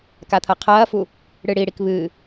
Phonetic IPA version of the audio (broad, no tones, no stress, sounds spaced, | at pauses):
k a t̪ʰ ɐ qʰ ɐː f u | ɽ ɨ ɽ i ɽ i k β ɨ